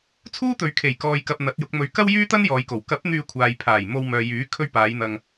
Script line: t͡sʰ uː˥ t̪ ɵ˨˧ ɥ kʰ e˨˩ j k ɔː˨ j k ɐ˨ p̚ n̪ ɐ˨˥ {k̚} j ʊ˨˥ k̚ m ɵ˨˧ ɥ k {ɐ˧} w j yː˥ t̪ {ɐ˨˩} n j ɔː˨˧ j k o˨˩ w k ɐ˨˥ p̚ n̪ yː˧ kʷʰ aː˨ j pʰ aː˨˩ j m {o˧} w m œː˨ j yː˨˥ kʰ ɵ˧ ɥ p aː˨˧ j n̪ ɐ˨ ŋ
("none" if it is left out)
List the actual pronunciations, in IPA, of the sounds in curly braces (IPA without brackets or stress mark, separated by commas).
t̚, ɐ˥, ɐ˥, o˧